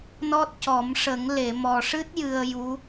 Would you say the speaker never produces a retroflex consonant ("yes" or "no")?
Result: no